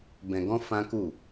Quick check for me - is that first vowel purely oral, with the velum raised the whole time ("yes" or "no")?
no